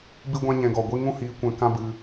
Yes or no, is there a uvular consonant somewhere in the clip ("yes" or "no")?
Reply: no